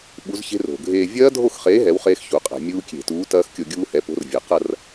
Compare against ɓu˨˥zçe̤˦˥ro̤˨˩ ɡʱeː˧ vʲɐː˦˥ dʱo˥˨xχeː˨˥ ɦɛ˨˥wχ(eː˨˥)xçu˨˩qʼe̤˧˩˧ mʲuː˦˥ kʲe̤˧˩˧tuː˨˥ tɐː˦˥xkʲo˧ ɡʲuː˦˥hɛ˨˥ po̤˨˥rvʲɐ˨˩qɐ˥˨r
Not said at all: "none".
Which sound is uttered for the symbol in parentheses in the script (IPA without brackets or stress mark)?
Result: eː˦˥